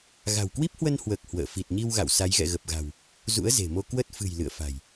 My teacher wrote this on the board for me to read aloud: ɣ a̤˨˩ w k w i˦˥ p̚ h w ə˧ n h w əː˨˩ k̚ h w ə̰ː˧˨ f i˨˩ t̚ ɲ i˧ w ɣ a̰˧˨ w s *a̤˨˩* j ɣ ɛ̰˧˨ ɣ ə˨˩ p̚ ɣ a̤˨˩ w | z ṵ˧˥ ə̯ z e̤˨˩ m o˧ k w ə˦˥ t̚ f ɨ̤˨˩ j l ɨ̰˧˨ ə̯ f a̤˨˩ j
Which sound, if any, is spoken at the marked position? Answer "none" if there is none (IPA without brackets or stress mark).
a˨˦